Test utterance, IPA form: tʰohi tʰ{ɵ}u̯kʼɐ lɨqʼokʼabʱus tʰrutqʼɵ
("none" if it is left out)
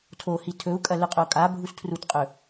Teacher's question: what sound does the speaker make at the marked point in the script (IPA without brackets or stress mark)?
ɵ